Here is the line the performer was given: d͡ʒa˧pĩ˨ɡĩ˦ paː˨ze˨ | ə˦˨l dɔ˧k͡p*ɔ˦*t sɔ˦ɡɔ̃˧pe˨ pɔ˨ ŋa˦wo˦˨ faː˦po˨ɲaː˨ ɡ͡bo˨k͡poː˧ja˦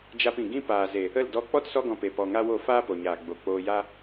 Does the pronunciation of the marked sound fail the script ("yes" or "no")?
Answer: no